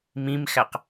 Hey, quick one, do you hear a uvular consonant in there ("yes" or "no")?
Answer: yes